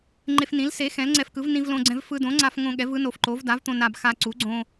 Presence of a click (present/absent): present